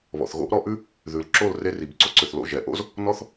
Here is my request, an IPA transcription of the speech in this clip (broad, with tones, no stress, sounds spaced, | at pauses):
β ɔ̰˨ θ ɣ o̰˦ ʔ ɾ ɔ˧ ʔ ʉ˦ | ð ʉ˨ l ǁ o˦˨ l r e˧ r i˨ b ǀ o˧ ǀ ø˨ θ l o̰˦˨ ʒ ɛ˨ ʔ o̰˦ z | n ɔ˦ θ